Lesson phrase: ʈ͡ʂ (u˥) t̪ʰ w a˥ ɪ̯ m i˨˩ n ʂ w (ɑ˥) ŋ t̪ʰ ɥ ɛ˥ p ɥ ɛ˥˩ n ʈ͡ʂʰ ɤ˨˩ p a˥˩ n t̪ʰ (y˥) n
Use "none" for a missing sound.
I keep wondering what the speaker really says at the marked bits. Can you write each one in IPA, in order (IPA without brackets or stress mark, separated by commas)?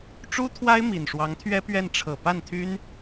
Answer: u˥, ɑ˧˥, y˥